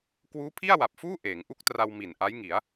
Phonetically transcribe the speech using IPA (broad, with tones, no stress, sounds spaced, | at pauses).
k w uː˦˥ pʰ i˥˩ a̯ w a˨˩ p̚ f uː˥˩ ʔ eː˩˦ ŋ ʔ u˥˩ k̚ t r a˧ w m i˨˩ n ʔ a˦˥ j ŋ i˩˦ a̯